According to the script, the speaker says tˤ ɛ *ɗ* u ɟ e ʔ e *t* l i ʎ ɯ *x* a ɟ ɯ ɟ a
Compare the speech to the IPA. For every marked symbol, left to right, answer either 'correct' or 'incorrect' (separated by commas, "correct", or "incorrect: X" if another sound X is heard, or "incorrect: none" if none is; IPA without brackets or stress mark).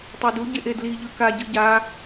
incorrect: d, incorrect: d, incorrect: k